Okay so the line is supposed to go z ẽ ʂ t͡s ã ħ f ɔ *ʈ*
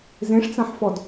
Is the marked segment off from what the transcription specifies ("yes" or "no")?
yes